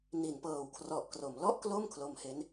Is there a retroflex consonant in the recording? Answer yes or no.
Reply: no